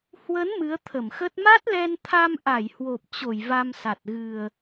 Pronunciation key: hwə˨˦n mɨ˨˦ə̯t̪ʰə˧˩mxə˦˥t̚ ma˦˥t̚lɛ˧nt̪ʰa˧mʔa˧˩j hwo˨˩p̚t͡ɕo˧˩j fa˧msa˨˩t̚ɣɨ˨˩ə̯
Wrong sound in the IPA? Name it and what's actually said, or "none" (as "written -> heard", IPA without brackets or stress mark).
f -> v